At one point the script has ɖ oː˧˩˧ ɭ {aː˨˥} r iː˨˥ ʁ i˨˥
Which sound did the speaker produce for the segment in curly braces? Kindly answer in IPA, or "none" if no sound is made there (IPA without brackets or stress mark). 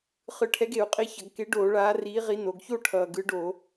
aː˨˥